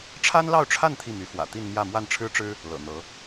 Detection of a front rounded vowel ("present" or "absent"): present